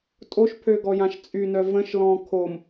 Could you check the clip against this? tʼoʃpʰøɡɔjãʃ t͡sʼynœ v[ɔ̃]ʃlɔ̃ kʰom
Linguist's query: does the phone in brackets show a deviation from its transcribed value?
yes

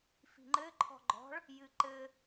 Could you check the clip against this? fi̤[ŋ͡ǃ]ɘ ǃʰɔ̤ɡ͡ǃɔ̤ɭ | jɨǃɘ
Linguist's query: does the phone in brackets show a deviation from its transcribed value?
no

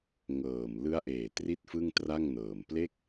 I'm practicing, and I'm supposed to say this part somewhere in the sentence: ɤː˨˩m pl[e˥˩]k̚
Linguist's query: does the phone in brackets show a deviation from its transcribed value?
no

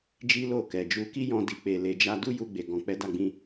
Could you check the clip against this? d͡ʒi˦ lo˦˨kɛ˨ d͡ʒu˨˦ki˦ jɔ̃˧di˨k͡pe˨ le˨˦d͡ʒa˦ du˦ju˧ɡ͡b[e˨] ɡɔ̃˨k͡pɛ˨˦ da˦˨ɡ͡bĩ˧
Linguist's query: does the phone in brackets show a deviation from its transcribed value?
no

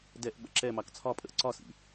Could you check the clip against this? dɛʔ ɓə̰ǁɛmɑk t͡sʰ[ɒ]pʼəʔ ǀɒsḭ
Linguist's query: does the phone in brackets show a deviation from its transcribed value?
no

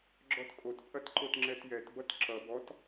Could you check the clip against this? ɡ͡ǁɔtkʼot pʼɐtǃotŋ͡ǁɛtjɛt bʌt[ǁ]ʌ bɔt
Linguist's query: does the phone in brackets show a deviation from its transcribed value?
no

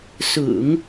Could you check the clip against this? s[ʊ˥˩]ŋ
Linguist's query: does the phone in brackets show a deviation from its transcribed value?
yes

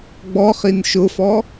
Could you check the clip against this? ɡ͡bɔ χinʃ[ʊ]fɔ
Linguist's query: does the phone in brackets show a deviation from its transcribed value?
no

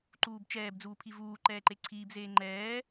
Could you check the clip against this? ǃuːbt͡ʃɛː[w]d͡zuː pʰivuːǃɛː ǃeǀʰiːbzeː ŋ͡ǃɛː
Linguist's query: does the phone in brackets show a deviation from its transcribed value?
yes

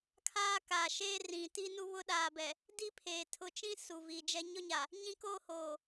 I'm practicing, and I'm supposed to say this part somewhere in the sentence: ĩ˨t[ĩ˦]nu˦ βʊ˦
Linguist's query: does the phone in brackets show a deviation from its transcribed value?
yes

